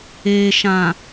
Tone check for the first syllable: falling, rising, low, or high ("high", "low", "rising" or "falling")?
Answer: low